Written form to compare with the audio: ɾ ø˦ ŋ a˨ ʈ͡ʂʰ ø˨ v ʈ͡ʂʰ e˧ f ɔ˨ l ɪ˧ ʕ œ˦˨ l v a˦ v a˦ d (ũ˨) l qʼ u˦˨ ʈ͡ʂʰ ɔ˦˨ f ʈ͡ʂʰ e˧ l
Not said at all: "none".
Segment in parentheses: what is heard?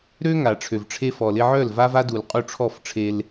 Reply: u˨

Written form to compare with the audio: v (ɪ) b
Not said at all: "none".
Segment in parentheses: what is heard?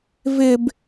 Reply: ɪ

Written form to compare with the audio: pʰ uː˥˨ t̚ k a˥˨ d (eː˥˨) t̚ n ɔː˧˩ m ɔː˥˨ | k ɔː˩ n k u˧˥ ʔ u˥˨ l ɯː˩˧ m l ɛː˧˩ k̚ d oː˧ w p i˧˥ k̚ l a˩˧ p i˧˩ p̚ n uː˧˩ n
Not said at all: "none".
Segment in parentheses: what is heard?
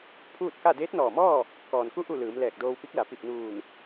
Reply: eː˧˥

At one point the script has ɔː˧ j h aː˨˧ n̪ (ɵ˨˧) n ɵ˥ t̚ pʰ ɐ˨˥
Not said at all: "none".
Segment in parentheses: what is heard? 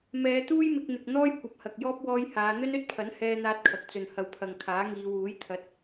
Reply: ɵ˥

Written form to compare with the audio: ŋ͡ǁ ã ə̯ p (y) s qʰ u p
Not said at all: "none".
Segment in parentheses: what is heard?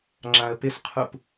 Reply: ɪ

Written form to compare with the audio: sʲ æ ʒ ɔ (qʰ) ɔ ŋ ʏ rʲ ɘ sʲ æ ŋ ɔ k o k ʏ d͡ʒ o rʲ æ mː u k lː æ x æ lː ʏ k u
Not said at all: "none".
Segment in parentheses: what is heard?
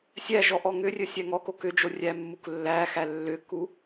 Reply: ʔ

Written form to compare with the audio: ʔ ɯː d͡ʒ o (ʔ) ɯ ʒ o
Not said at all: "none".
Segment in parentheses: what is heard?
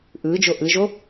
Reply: ʔ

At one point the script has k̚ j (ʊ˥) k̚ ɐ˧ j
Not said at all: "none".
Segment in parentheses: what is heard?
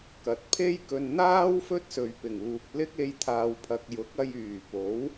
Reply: ʊ˨˥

